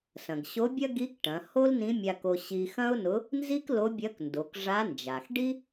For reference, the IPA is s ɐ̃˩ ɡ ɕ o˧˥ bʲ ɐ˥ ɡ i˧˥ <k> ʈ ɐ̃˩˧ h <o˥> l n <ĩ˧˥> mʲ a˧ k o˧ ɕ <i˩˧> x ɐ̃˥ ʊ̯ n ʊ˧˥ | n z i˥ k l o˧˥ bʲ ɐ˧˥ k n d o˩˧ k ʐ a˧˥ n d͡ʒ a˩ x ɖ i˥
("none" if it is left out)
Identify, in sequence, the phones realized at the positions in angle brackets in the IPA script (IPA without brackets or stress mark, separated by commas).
k, o˥, ĩ˧˥, i˧